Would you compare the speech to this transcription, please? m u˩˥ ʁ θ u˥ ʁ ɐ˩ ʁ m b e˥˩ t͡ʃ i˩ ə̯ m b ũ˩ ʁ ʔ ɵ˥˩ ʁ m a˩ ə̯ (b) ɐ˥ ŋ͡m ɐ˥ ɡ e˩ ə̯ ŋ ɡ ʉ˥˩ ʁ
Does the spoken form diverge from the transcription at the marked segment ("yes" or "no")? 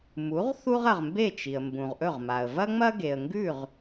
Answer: yes